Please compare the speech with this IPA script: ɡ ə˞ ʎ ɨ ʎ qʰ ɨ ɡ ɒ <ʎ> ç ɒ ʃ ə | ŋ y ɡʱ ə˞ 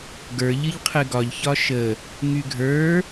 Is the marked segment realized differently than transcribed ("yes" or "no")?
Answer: no